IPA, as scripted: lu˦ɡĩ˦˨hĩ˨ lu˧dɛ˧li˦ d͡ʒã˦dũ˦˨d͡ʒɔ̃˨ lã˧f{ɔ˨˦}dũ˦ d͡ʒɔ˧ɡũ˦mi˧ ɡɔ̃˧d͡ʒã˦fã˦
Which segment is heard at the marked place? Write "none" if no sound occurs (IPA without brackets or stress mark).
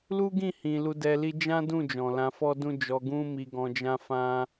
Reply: ɔ˦